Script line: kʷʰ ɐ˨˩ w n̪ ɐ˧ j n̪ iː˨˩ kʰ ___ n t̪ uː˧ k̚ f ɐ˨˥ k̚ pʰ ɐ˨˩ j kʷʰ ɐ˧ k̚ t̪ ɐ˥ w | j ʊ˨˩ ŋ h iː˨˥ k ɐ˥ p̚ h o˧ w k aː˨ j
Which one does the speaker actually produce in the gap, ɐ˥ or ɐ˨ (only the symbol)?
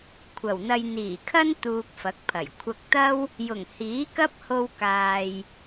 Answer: ɐ˥